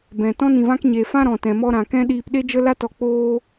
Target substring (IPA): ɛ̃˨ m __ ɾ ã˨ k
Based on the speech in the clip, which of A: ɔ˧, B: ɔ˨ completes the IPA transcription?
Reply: A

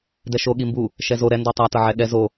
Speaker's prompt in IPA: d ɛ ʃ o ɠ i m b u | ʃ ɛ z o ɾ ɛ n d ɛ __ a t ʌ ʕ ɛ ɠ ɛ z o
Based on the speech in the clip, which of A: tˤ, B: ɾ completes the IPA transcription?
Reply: A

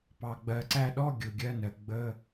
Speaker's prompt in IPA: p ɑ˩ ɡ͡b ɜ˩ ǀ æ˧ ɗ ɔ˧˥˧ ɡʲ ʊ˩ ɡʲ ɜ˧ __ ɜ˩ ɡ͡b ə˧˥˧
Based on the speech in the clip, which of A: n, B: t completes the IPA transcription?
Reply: A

